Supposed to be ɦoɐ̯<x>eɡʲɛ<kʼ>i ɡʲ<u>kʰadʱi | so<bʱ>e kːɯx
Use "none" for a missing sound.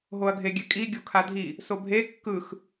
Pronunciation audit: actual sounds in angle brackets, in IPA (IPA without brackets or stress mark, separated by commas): ɡʱ, kʼ, u, bʱ